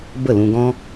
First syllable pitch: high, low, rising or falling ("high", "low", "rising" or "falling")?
falling